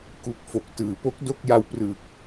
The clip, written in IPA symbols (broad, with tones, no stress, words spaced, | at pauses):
ku˦˥k̚fo˨˩k̚tɯː˨˩ po˦˥k̚do˥˩k̚ja˧wprɯː˨˩k̚